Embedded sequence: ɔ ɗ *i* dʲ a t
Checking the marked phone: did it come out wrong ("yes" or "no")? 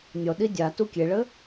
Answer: no